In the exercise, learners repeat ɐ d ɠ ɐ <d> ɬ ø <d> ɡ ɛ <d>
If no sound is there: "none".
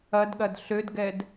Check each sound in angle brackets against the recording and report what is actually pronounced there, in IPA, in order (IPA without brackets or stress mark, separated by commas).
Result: d, d, d